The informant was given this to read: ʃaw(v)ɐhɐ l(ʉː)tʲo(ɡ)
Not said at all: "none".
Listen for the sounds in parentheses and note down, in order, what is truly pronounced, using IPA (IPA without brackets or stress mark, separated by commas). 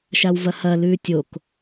v, ʉː, k